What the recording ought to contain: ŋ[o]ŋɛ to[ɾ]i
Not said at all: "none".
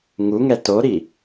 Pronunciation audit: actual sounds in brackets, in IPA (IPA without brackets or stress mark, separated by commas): u, ɾ